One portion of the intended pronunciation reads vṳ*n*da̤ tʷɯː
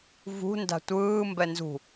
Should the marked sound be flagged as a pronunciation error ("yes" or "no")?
no